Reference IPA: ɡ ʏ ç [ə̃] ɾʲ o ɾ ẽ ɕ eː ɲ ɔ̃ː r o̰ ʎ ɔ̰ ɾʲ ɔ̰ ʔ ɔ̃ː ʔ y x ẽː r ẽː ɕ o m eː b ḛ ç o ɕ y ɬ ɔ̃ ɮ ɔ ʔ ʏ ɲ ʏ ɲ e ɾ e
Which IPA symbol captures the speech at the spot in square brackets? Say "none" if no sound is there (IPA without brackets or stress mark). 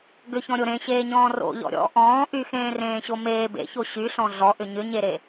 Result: ɔ̃